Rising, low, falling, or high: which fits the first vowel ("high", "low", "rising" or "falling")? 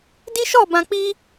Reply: high